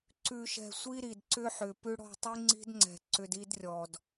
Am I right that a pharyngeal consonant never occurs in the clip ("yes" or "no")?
no